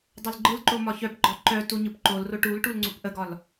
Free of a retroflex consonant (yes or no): no